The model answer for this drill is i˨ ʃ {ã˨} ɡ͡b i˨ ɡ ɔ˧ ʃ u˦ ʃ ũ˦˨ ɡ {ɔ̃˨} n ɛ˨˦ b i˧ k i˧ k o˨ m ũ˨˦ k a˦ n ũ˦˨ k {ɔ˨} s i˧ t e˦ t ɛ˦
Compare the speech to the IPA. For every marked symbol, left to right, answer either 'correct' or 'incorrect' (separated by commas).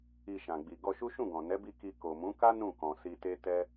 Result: correct, correct, incorrect